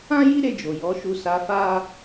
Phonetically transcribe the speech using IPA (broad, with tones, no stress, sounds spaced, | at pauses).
ã˦ j i˦ ɾ e˧ d͡ʒ o˨ j ɔ˨˦ ʃ u˧ s a˧ f a˦